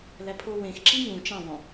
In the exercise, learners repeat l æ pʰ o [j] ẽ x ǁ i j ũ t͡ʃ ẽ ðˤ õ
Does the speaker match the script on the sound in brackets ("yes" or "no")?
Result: no